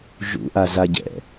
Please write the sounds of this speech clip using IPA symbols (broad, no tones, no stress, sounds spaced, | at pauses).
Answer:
ʒ ṵ ʔ a z a ɟ ɛ̰